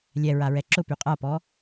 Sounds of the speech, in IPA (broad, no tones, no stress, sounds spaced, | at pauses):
lʲ ɛ ɹ a ɹ ɛ ǁ ʊ p y qʼ a p ɔ